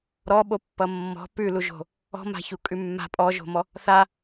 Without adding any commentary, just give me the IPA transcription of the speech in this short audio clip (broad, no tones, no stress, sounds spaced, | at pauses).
ɾ ɔ ɓ o pː ʌ mː ɔ̤ p ʉ l u ʒ o̤ | ɔ̤ m a̤ ç u kʼ ʉ mː a̤ pʼ ɔ ʒ o̤ m ɔ | θ a